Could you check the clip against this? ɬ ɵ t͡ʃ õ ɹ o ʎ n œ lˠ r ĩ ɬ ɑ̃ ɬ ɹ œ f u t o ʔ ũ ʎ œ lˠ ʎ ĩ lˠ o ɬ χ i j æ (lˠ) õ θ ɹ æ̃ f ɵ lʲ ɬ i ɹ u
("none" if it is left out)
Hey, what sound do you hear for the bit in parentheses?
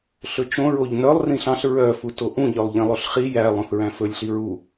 lˠ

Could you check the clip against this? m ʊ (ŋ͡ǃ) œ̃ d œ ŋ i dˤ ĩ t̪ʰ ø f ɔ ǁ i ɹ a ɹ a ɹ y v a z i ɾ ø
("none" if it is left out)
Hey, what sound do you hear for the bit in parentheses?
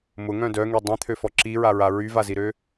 ŋ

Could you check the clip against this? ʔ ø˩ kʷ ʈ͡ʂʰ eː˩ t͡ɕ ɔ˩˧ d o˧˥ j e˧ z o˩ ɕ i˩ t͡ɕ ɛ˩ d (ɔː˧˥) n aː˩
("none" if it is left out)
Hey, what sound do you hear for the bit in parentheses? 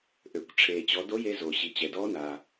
ɔː˧˥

